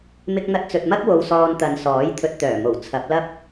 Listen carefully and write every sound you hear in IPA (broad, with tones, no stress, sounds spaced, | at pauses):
m ɪ˧ k̚ n̪ ɐ˧ t̚ t͡s ɵ˨ t̚ m ɐ˥ k̚ w o˧ w s ɔː˧ n t̪ ɐ˨ n s ɔː˨˥ j t̪ʰ ɵ˧ t̚ t̪ œː˨˩ m o˨˩ w t͡sʰ ɐ˨˥ p̚ l ɐ˥ p̚